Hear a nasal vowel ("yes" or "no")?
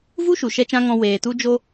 yes